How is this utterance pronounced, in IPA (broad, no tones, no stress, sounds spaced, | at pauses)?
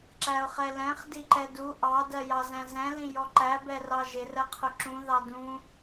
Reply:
ǁ æ ʊ̯ χ ɛ l ɛ̃ χ d i ǃ ɛ d u ʔ ɑ d ɜ j ɑ z æ̃ z ɛ̃ l ĩ j ɔ ǃ æ b ɛ r ɑ ʒ ɪ r ɜ qʰ ʊ ǁ ũ ð ɑ d ũ